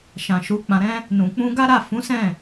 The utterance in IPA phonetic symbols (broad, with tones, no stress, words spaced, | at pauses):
ʃã˨ʃu˨˦ k͡pã˧ɾɛ̃˦ | nũ˨ k͡pũ˧ɡa˦ɾa˦˨ fũ˨˦ sɛ̃˦˨